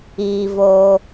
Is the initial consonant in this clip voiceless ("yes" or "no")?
no